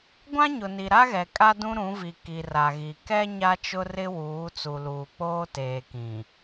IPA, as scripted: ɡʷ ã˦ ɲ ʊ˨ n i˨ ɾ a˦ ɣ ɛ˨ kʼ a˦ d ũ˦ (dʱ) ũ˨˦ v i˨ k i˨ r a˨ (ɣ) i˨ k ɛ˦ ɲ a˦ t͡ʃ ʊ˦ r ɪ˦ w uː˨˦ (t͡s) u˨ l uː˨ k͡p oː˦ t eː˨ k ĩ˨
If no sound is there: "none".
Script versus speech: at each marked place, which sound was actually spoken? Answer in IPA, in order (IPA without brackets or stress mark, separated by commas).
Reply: ɾ, ɣ, t͡s